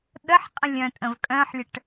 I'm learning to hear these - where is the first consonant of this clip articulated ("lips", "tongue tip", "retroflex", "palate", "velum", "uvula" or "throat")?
tongue tip